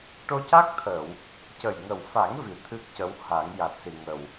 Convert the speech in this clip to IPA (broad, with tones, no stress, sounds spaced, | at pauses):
ʈ o˧ c a˦˥ k̚ t̪ʰ ə˨˩˨ w | c ə˨˩ j ŋ ə˨˩ w f a˨˩˦ ŋ v i˨˩˨ t̪ʰ ɨ˦˥ k̚ c ə˧˥ w h a˨˩˦ ŋ j a˨˩ t̚ s i˨˩ ŋ ə˨˩ w